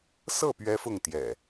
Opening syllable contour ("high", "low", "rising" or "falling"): falling